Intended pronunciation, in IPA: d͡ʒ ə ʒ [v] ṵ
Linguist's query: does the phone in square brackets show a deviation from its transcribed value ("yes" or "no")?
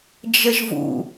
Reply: no